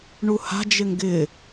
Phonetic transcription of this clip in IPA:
ɳuha̤ d͡ʒɪŋɡɪː

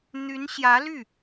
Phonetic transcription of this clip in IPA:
n̪y˧˥nɕjä˧˥ ly˥˩

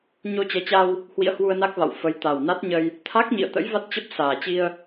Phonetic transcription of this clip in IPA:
ɲo˧t͡ɕɛ˨˦t͡ɕa˧w | hwḭ˧˥ə̯hwu˧ə̯na˦˥k̚va̰˧˨w fə˨˦j t̪a˨˩w na˦˥t̚ɲə˧j | t̪ʰa˦˥k̚ɲḭ˧˨ə̯t̪ə̰˧˥j va˦˥t̚t͡ɕə˦˥p̚ saː˨˩t͡ɕi˧ə̯

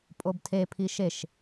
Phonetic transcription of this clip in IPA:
pʼobtʰepʰiʃ eʃ

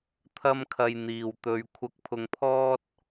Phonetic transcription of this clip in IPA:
t̪ʰɐ˥mkʰɐ˧j n̪iː˨wt̪ɵ˧ɥ kʷʰɐ˧k̚pʰʊ˧ŋpʰɔː˥t̚

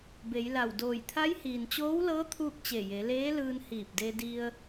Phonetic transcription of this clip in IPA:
be˩˧jla˧˩wdoː˧˩j t̪ʰa˧˥jhiː˩nt͡ɕoː˧˥wlɤː˧˥ t̪ʰuː˥˨k̚t͡ɕe˧˩je˩˧ leː˧˥lɯː˧n hiː˧˩p̚de˧di˧ə̯

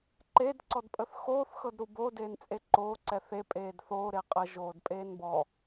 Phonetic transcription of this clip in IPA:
ǃed ǀɔdpʼəθxoːθ xɤdɾubo deːnt͡sʼeǃoː ǀɛθe pʼeːdθoː ɾeqʼə ʒoːdpʼeːnbɔ

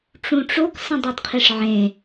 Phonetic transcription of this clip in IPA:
ʈ͡ʂũʈ͡ʂok sə̃dˤœdqʰiʂʕẽ

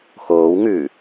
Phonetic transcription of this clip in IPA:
xoːw ŋʉ

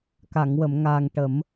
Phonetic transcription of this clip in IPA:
ka˨˩˨ŋwə˨˩˨mŋaː˨˩ŋ ʈə˨˩˦m

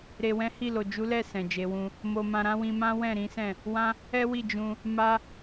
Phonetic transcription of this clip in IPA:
ɾe˨wɛ̃˨˦ hi˦˨lo˨ d͡ʒu˨˦lɛ˦˨ sɛ̃˨d͡ʒe˨˦wũ˦ | mo˧mã˧ɾã˦ wĩ˧mã˦ wɛ̃˦˨ɾĩ˨˦sɛ̃˦˨ | wã˦ | ɛ˦wi˦˨ d͡ʒũ˧ | ma˦

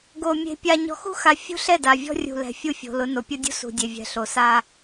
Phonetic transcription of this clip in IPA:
ɡo˨ mʲe̤˨pʲa˨ ɲɔ̤˨xṳ˦xa˨ fʲṳ˦ɬɛ˦˨da˨ vʲɔ̤˦rʲṳ˨ lɛ̤˨fʲu˦˨fʲo̤˨lʊ˨˦ no˨pʲo˦dʲṳ˦ sṳ˨dʲe˨vʲɛ̤˨ ɬo˨ sa˦

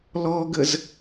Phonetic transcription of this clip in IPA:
lɔɡəz

